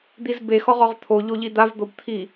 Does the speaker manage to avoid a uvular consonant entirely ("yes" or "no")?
no